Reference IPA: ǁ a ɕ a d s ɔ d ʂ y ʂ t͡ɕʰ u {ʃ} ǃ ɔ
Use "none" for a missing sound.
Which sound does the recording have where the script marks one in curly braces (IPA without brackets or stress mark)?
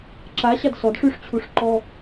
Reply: ʂ